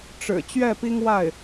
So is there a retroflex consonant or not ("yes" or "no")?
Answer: yes